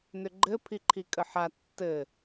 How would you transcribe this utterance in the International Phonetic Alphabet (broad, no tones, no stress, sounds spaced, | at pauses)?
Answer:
n ʏ ɡ͡ǃ ɘ pʰ i ǃʰ i kʼ ə ħ a tː ɘ